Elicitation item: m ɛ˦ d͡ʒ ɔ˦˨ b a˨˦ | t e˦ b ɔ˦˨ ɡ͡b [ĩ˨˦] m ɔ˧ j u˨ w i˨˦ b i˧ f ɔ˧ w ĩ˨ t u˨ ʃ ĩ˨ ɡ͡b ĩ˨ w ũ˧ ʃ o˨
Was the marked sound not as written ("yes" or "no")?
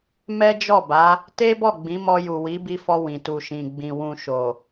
no